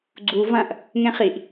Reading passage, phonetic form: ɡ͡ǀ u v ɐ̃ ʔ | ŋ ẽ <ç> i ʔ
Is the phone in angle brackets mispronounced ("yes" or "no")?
yes